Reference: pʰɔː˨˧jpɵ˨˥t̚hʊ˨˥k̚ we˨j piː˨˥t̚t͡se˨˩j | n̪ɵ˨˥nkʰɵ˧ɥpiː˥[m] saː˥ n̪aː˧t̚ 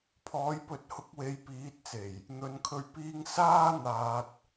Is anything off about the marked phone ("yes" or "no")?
yes